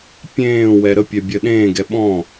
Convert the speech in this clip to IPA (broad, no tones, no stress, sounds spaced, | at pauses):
pʲ ẽː w ɛ ɾ ə pʲ ɛ bʲ ɜ ɗ ẽː ɡ ɛ ɓ ɔ̃